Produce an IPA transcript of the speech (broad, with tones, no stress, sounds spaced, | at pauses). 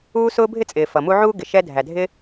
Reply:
uː˥ s ʊː˥ bʱ ɪ˥ t͡sʼ ɪː˨ f ʌ˨ m u˦ ʕ uː˥ ɡ ɪ˨ ʃ ɛ˦ dʱ æ˨ dʱ ɪ˦